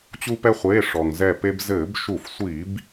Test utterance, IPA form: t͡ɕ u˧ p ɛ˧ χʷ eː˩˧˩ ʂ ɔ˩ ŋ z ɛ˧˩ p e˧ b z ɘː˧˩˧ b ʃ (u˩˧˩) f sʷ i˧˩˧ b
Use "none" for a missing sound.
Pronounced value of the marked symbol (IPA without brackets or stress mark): u˧˩˧